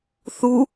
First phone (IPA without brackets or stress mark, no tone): θ